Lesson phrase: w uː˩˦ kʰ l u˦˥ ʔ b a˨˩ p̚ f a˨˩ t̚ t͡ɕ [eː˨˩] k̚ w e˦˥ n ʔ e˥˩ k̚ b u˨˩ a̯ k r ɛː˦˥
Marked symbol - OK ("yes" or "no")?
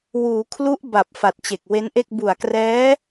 no